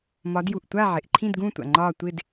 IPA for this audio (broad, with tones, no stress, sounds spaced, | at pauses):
m ɒ˨˦ d j u˩ ʔ tʷ a˦˨ ʕ ɪ˩ ʔ ǃʰ ĩ˦˨ d ɡ ũ˦˨ tʷ a̰˩ ŋ͡ǃ ɒː˦˨ tʷ ɪ˦˨ d